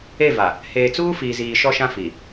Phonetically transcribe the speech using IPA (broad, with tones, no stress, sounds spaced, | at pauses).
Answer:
e˦˨ v a˨ | h eː˨ t͡s uː˦ f iː˨ z iː˨ ʃ ɔ˦ ʃ ã˦ f i˨